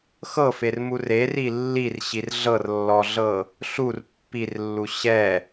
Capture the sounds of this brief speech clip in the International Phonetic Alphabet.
x ɤ f e r m u r e r i lː i r ɕ i r ɮ ɤ r lː ɔ ɮ ɤ | ɬ u r pː i r lː u ɕ ɛ

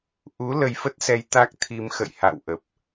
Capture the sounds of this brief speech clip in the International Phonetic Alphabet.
ʔ u˨˦ l ə˧ j f ə˦˥ t̚ s ɛ˧ j t̪ a˦˥ k̚ t̪ʰ i˧ m x ə̰˧˨ j h a̰˧˨ w ʔ ə˨˩ p̚

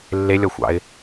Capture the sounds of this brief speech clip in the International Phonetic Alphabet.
lː e lʲ ɔ xʷ ɑ̰ ɪ̯

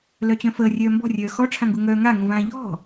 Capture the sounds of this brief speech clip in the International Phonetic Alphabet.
l œ t͡ɕ œ̃ f əː rʲ œː m b ɔ̤ rʲ œː x ɔ ʈ͡ʂʰ ã ŋ ɡ u ŋ œː ŋ a ŋ ũ v ãː ʎ ɔ̤

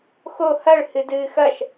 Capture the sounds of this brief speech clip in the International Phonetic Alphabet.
x o h ɐ ɭ h ɨ d ɨː x ɐ ʃ

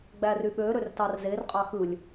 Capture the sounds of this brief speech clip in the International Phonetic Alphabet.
ɡ͡b æ r y ɓ ø ɾ ø r t ɑ r z e r qʼ ɑ x ɯ lʲ

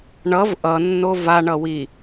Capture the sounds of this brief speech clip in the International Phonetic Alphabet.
ɳ ʌ v ʔ ʌ nː o v a ɳ ʌ w i

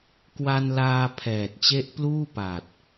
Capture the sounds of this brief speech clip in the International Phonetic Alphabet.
k w a˧ n l aː˧ pʰ ɛː˨˩ t̚ t͡ɕ e˦˥ ʔ p l uː˥˩ p a˨˩ t̚

